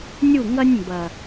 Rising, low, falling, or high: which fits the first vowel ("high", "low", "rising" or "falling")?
falling